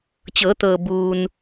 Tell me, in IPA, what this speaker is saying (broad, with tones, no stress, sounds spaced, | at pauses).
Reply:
t͡ɕ ɤː˩˧ t̪ ɤː˩ b uː˩ n